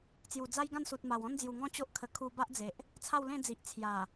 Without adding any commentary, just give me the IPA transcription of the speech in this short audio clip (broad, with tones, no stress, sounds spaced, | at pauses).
t͡s j u˨˩ d͡z a˦ j ɡ ã˥˧ n s u˨ t̚ m a˨˩ w ɔ̃˦ n d͡z j u˨˩ ŋ ɔ̃˦ t͡ɕ o˦ ʔ kʰ ə˧ kʰ u˧ b a˦ ʔ d͡z e˨ ʔ | t͡sʰ a˥˧ w l ẽ˥˧ d͡z i˨ ʔ t͡sʰ j a˨˩